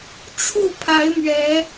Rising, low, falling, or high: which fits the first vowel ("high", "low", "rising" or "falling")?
falling